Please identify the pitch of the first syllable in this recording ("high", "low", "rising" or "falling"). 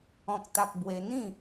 high